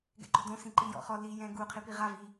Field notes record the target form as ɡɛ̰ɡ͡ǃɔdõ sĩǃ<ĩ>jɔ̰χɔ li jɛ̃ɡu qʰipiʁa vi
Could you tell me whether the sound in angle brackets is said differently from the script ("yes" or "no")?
yes